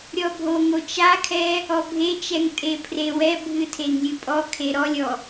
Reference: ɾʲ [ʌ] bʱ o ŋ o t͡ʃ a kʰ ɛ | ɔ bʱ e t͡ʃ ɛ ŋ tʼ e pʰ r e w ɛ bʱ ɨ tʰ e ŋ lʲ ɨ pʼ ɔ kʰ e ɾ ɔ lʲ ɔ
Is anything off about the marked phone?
yes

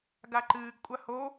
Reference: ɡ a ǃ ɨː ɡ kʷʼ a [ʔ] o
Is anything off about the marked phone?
yes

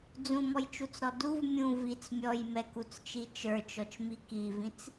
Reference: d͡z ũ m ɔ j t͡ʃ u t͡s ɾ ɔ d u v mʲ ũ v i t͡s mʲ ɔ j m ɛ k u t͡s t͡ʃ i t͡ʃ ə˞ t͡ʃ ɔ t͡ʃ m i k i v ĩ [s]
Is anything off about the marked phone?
yes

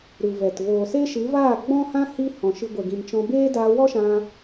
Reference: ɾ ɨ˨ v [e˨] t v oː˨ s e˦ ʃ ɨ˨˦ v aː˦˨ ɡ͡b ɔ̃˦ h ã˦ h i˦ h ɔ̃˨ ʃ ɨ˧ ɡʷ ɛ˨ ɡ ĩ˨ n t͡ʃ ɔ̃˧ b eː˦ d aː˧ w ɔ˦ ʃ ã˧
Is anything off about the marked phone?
yes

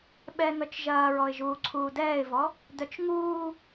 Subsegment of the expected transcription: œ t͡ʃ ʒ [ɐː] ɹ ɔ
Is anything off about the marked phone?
no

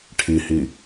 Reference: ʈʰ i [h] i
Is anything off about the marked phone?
no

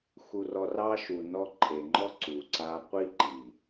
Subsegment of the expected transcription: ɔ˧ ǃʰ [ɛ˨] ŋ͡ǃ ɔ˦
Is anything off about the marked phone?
yes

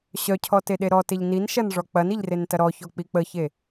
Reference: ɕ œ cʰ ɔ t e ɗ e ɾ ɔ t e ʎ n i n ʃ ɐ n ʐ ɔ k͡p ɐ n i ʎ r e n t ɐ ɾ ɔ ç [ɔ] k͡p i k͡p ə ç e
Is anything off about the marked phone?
no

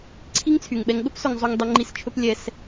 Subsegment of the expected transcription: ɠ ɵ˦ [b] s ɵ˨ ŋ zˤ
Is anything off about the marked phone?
yes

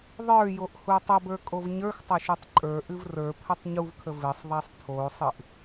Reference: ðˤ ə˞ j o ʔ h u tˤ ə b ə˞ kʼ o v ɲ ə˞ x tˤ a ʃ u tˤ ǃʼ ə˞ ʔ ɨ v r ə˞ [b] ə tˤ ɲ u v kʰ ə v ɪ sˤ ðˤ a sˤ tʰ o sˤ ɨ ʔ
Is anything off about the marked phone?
yes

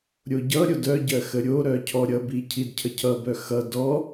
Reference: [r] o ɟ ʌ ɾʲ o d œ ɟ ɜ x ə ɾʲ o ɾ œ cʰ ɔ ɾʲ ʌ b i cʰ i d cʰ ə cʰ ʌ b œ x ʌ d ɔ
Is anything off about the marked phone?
yes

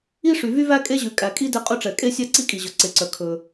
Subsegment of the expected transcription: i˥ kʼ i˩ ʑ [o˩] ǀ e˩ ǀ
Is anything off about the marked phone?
yes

